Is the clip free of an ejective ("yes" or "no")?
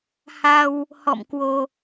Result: yes